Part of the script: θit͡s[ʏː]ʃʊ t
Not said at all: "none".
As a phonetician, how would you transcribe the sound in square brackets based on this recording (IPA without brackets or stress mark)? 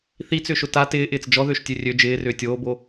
ʏː